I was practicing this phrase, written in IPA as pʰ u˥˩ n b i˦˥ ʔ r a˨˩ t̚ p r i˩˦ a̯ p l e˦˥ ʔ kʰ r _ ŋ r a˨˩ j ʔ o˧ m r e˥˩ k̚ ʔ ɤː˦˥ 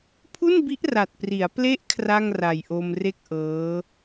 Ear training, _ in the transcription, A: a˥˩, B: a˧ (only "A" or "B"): A